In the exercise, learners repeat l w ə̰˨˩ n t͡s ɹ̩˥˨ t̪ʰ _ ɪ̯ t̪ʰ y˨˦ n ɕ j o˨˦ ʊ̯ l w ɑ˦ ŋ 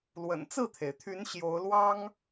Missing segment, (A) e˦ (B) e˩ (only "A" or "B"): B